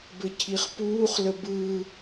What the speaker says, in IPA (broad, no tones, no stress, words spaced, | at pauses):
bɘcʰiχpuːχlə bɯ